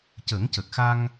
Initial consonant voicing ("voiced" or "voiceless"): voiceless